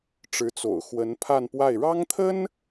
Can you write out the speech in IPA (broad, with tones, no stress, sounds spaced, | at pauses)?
ʈ͡ʂ ɻ̩˧˥ t͡s o̰˨˩ ʊ̯ x w ə˧˥ n pʰ a˥˧ n p w a˥˩ ɪ̯ ɻ ɑ˥ ŋ t̪ʰ ə˥ n